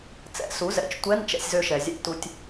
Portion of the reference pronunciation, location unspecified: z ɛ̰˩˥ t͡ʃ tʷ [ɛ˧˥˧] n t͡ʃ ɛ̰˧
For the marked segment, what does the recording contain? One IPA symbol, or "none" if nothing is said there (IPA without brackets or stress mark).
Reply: ɛ˧˥˧